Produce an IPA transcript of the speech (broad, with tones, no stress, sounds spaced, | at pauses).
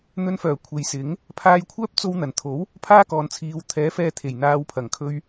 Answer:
n̪ ɵ˧ n f œː˨˩ kʷʰ e˨ j s ɪ˨˥ ŋ | pʰ aː˧ j kʷʰ œː˥ p̚ t͡s o˧ w n̪ ɐ˨˩ n t̪ʰ o˨˥ w | pʰ aː˥ k ɔː˨ n t͡sʰ iː˨˧ w t̪ʰ ɛː˨˥ f ɛː˧ t̪ʰ e˨˩ j n̪ aː˨˧ w pʰ ɐ˨˩ ŋ kʰ ɵ˧ ɥ